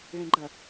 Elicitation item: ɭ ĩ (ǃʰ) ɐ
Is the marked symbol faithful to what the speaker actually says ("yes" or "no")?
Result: no